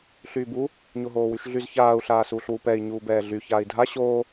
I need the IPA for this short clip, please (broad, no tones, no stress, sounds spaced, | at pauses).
ɬ yː b u | ɲ o ɦ oː w y ʃ ɮ y z ç aː u̯ ɬ aː s uː ɬ w u p ɛ i̯ ɲ uː b ɛː ɮ y ç aː i̯ dʱ a ɕ oː